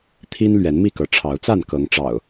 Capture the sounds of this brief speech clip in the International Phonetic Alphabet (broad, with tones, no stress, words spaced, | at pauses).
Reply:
t̪ʰi˦n lɥɛ˨˦nmi˥˨kɤ˨˦ ʈ͡ʂʰɑ˨˦ʊ̯t͡sa˥˨n kɤ˨˦ŋʈ͡ʂɑ̰˨˩ʊ̯